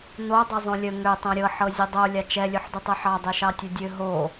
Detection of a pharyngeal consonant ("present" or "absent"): present